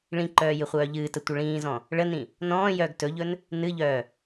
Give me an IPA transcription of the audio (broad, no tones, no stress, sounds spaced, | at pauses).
ɭ ĩ ǃ œː j ɨ χʷ œː ʎ ɨː t ə tʷ ə ɭ ĩː z ɔ̃ | ɭ ə n ĩ | n ɔ̃ː j œː ɡ t ɵ ʎ ɵ n | n ɨ ʎ œː